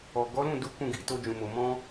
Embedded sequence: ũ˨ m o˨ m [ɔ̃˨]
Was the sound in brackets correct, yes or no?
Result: no